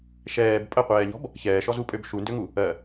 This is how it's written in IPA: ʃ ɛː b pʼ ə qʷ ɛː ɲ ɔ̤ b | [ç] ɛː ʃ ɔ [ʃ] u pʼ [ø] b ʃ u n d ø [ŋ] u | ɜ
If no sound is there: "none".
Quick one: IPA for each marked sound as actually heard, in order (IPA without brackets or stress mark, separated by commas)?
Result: ç, z, ø, ŋ